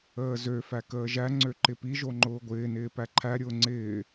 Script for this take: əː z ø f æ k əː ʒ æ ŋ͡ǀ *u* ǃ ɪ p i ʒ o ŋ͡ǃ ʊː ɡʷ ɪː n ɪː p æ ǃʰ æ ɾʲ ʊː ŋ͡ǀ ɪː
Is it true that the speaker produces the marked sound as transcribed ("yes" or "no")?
no